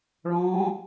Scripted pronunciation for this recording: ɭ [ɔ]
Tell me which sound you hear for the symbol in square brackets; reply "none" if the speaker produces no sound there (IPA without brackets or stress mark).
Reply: ɔ̃